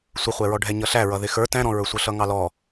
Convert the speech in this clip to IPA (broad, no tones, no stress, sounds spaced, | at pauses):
sʷ ɪ χʷ ɛ ɹ ɔ ɖʱ ɛ ɲ ʌ ɬ æ ɹ ʌ ð ɪ x ə˞ t æ̃ ɾ ɔ̃ ɹ ə˞ sʷ ʌ ɬ ʌ ŋ ɑ l ɔ